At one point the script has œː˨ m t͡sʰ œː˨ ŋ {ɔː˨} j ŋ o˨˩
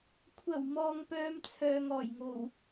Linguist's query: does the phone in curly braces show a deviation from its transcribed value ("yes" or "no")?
yes